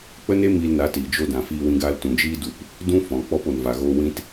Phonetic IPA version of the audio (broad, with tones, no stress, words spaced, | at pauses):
k͡pə˦ne˦ miː˧lna˨˦tiː˨ d͡ʒo˧dã˨ fiː˧wĩ˧ɡaː˧l tũ˨d͡ʒiː˦ du˧p | dũ˦ fɔ̃˨ k͡pɔ˧po˨nva˨ɣoː˧ wĩ˧t